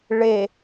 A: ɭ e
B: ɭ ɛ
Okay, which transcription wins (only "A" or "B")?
A